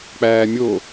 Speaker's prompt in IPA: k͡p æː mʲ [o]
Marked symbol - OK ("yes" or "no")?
yes